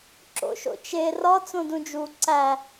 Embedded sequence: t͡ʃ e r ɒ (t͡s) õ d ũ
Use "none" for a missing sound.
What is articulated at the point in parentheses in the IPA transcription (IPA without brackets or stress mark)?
t͡s